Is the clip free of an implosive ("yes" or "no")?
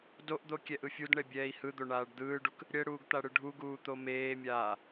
yes